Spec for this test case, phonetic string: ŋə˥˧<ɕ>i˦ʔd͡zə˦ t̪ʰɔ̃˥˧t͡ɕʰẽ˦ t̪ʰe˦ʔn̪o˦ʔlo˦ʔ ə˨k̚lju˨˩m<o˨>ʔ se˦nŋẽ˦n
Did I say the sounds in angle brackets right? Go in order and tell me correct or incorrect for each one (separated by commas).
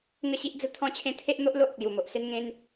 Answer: correct, correct